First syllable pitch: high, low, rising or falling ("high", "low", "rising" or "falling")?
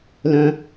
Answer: low